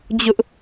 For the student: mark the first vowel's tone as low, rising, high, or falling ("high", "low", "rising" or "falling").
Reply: high